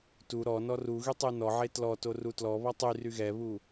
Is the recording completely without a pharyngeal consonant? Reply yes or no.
no